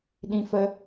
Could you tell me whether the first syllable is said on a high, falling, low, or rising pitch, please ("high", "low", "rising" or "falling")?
high